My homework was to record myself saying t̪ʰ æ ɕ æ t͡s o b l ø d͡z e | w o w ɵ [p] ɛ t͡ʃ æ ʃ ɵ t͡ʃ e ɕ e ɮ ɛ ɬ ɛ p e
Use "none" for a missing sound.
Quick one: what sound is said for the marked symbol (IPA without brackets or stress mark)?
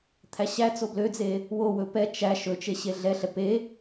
p